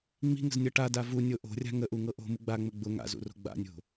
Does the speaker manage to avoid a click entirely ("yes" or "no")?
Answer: yes